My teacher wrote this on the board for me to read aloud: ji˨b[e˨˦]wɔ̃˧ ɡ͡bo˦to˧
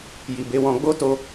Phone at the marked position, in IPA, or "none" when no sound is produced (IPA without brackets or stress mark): e˨˦